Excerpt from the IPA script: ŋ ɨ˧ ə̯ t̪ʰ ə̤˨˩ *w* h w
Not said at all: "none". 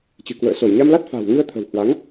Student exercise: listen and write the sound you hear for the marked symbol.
w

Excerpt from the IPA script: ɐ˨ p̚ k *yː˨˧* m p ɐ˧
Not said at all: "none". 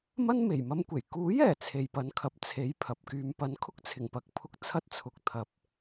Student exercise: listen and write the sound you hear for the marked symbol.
yː˧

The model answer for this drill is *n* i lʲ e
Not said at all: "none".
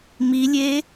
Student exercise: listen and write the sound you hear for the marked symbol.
m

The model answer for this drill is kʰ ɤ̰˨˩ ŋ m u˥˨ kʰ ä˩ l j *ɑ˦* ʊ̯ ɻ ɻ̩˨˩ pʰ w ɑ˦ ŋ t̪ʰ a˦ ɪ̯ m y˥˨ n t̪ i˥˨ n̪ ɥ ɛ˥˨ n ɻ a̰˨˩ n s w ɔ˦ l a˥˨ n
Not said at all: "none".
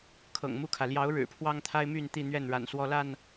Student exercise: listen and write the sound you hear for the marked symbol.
ɑ˨˦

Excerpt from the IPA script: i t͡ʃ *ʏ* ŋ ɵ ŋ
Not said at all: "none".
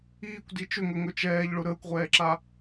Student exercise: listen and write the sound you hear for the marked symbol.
ʏ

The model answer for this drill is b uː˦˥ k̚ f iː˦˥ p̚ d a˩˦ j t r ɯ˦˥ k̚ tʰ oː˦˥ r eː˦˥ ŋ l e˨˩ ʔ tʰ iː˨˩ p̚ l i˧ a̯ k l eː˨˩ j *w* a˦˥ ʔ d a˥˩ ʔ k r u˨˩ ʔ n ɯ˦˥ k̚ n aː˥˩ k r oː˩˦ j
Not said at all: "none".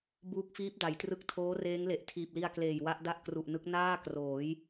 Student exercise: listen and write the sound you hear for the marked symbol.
w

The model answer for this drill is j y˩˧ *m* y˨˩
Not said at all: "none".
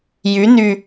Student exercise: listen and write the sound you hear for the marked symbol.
n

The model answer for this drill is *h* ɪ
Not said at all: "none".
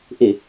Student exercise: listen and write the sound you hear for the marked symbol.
ʔ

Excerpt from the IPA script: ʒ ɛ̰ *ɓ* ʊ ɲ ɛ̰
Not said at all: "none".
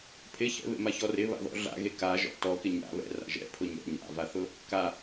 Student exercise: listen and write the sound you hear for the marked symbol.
pʰ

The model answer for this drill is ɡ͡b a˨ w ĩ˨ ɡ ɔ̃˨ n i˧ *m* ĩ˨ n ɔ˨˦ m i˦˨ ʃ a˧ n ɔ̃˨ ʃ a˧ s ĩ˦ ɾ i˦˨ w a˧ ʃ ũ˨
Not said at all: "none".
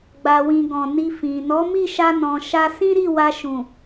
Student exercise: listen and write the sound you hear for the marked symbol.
f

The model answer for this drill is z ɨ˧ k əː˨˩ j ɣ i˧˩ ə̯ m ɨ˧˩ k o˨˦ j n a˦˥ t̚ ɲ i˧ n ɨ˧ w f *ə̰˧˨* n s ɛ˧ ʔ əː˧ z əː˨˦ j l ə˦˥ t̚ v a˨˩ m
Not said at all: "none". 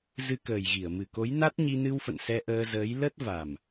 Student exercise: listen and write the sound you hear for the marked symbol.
ə̰˧˨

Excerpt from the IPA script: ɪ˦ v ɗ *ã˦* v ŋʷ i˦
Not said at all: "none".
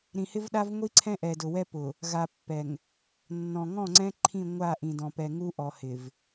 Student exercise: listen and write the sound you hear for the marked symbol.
a˦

